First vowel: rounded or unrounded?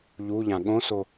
rounded